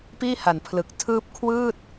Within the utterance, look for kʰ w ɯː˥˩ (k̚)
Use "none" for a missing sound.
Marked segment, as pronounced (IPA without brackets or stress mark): t̚